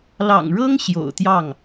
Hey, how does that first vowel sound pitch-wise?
low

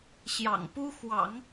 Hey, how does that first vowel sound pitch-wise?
low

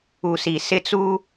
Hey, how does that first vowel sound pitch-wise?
low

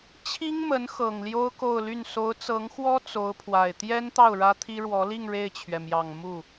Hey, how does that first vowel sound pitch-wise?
high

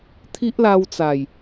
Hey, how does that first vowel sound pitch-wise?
high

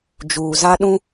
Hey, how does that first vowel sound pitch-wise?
low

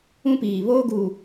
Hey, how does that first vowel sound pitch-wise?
high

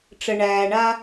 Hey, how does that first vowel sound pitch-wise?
low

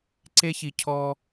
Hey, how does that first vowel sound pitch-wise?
high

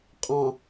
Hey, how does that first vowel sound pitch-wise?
low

